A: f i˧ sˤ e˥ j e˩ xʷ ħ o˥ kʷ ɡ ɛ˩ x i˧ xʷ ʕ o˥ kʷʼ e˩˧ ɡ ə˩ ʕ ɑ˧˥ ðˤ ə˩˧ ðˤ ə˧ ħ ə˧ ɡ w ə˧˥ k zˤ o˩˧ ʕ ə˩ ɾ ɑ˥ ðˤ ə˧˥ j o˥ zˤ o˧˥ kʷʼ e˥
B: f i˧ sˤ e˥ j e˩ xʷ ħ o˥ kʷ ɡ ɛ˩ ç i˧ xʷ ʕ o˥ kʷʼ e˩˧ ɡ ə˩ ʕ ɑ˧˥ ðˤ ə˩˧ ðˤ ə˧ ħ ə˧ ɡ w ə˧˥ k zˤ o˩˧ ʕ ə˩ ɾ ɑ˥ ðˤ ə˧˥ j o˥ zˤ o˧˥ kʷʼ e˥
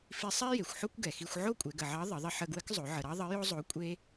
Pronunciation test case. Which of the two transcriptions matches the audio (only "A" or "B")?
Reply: A